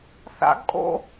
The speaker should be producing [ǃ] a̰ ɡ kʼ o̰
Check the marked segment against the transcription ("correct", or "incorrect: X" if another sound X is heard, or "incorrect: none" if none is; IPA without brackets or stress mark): incorrect: θ